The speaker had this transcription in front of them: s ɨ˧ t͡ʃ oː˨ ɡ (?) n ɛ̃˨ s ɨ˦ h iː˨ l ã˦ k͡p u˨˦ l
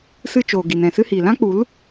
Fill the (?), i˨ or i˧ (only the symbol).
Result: i˨